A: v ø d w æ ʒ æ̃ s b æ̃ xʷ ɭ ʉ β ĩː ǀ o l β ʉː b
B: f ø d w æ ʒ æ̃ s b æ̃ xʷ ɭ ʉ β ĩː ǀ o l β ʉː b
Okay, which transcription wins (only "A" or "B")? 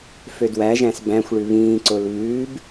B